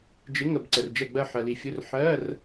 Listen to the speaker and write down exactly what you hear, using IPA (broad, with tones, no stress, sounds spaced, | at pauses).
d͡ʒ ɪ˧˥˧ ŋ ə˦˨ b ǀ ə˨ r d͡ʒ ɛ˦˨ ɡ͡b ɜ˦˨ ħ ɜ˨ l i˨ fʲ ʊ˧˥˧ r ħ ɜ˧˥˧ r